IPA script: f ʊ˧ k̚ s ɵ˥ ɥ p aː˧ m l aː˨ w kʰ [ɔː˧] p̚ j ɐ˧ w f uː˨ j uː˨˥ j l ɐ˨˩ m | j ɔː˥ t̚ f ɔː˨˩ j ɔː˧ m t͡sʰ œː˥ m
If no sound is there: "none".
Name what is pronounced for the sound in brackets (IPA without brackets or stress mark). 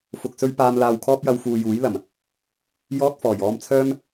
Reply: ɔː˥